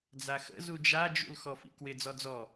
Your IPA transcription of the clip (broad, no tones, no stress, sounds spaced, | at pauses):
d͡z a x ə̰ z u d͡ʒ a d͡ʒ ṵ l x ɔ f ḭ k w ɪ d͡z ɔ d͡z ɔ